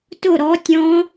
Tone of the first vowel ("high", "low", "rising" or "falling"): falling